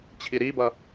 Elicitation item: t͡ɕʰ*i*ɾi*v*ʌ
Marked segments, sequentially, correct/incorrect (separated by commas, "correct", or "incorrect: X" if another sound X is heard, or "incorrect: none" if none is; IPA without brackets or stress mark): correct, incorrect: b